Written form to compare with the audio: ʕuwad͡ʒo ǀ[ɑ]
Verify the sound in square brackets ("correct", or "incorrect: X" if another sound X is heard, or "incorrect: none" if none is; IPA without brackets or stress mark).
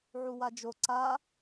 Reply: incorrect: a